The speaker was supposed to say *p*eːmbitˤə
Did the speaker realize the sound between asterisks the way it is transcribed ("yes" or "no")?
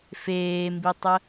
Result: no